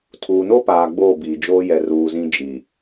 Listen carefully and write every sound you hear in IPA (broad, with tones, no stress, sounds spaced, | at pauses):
tʰ uː˨ n o˦ p aː˨ ɡ͡b oː˦˨ b iː˨ d͡ʒ oː˦ j ɛ˨ r uː˨ z ĩ˦ d͡ʒ i˨